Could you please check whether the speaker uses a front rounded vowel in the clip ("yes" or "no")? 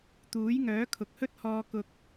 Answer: yes